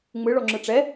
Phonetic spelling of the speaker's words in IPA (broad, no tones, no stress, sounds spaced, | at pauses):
ŋ͡m ɯ ɭ ɔ ŋ͡ǁ ɯ ʈ͡ʂ ɛ